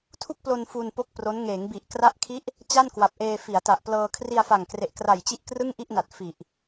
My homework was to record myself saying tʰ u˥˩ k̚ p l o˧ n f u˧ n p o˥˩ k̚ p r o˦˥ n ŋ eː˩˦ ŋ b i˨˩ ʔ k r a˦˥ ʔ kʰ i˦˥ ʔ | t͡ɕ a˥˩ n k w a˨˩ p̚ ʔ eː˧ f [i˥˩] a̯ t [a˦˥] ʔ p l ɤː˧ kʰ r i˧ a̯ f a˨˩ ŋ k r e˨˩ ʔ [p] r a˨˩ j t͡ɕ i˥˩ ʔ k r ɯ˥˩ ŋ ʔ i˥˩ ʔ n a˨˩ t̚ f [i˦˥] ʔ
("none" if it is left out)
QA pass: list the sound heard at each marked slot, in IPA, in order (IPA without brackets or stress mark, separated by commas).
i˩˦, a˨˩, k, i˨˩